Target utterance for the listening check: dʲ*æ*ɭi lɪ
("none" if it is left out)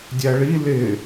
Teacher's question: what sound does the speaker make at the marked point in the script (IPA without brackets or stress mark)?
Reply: æ